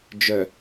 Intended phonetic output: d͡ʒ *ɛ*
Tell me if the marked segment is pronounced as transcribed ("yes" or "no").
no